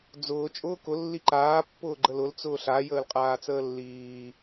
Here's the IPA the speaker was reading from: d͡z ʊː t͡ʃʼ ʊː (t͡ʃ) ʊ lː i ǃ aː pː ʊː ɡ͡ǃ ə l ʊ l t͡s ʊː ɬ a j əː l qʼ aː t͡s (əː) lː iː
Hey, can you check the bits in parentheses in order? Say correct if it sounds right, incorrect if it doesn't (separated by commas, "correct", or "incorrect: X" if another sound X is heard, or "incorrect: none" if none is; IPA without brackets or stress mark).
incorrect: k, correct